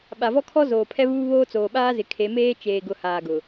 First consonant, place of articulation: labial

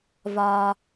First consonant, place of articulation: labial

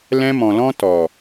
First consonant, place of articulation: alveolar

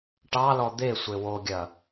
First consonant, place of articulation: retroflex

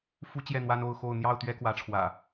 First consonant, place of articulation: labial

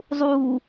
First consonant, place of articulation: alveolar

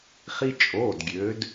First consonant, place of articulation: uvular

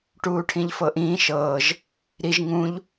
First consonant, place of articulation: retroflex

